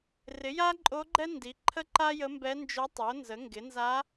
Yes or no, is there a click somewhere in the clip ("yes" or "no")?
yes